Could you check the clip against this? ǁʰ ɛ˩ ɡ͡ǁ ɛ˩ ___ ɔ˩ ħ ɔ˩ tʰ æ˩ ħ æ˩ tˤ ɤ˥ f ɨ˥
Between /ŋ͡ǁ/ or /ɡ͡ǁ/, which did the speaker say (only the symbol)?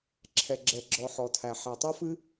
ɡ͡ǁ